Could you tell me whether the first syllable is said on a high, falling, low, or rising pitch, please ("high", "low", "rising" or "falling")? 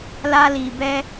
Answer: high